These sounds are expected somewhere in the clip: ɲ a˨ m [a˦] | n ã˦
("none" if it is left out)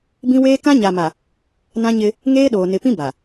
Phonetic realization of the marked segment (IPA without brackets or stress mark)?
a˨